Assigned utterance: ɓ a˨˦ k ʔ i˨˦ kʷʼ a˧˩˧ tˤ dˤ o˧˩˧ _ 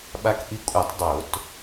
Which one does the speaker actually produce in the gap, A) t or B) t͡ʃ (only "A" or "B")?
A